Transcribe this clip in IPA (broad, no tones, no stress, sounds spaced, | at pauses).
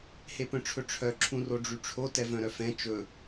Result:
h e p œ̃ ʈ͡ʂʰ ɵ ʈ͡ʂʰ œ ǁʰ ũ r o ɖ͡ʐ y ʈ͡ʂʰ o t ɛ v œ̃ ɾ œ f ɛ̃ t͡ʃ ɵ